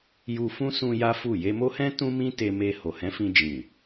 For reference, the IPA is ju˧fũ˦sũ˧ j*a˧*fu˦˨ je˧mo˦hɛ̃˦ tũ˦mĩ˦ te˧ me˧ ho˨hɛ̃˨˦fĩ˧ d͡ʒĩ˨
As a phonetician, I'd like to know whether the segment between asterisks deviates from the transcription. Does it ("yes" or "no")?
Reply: yes